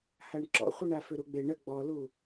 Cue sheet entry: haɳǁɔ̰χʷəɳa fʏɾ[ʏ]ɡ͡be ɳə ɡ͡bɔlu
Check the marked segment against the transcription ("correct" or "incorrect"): incorrect